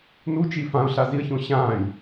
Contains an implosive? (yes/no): no